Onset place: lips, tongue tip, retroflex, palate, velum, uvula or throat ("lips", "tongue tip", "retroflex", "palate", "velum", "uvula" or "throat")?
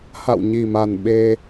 throat